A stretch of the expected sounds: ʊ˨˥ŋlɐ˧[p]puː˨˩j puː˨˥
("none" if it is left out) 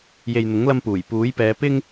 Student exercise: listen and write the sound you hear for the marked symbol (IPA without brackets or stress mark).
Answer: m